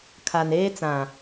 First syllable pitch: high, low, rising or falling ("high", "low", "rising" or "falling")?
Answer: low